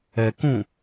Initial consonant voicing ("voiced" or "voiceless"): voiceless